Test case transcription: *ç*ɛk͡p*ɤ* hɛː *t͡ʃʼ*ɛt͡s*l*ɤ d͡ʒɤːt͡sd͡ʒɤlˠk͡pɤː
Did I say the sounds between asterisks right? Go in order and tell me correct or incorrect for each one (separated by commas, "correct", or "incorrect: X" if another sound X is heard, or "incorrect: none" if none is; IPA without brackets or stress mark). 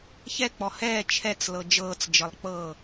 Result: correct, incorrect: ɔ, incorrect: t͡ʃʰ, correct